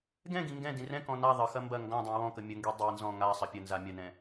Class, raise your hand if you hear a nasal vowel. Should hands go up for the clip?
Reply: yes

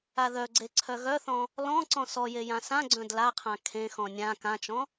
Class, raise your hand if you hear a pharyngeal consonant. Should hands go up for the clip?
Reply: no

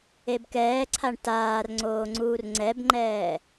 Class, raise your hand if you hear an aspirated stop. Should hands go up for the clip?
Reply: yes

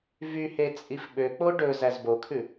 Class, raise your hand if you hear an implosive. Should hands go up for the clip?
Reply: yes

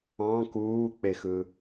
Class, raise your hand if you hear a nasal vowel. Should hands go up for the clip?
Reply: yes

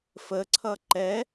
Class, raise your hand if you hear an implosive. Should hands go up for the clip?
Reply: no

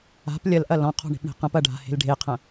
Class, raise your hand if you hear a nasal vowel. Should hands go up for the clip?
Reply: yes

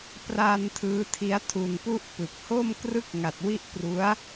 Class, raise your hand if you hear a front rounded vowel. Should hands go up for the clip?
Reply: no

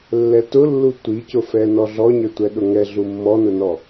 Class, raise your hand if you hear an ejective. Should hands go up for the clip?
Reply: no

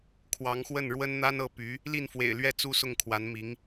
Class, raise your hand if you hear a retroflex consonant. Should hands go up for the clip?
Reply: yes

